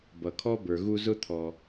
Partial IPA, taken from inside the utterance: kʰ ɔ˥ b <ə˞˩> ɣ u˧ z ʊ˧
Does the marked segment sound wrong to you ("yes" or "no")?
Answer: no